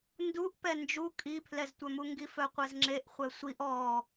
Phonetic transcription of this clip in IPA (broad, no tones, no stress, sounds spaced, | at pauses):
n d u ʔ p ɛ n d͡ʒ u kʼ i pʰ l ɛ z tʷ œ m u ŋ ɡ i f œ qʷ ɛ z ŋ͡ǁ e ʔ χʷ ɛ sʷ i ʔ ɔ